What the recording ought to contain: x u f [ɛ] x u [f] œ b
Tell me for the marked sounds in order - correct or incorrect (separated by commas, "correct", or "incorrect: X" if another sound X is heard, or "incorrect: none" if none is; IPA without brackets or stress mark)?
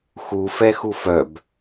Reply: correct, correct